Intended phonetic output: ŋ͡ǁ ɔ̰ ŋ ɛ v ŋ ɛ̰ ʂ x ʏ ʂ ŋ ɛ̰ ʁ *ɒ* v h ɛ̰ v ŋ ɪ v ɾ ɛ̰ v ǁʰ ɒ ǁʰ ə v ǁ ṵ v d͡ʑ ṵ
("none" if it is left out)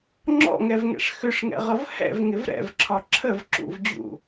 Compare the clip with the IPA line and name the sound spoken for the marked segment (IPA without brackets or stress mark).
ʌ